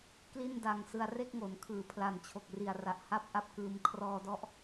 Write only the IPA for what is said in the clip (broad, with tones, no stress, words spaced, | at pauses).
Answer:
kli˥˩nda˧ŋsɯ˧a̯ re˥˩k̚ŋo˩˦nkʰɯː˩˦ pʰla˨˩nt͡ɕʰo˨˩k̚ri˨˩a̯ra˨˩ʔ ha˥˩p̚ʔa˥˩p̚kɯː˧m kʰrɔː˧dɔ˦˥ʔ